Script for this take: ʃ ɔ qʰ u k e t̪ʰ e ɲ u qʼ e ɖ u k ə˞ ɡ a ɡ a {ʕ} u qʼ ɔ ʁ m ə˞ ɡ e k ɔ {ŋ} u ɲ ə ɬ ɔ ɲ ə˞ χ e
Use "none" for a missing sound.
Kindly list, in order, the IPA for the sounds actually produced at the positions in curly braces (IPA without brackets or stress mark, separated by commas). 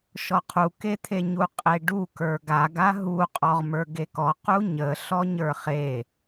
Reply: ɦ, q